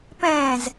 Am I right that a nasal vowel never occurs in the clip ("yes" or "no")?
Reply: no